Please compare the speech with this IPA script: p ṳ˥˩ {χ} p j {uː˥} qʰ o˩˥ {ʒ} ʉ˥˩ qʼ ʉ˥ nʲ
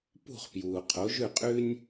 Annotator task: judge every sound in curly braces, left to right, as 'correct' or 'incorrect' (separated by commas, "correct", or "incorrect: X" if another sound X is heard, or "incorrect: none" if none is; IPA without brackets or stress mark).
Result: correct, incorrect: uː˩, correct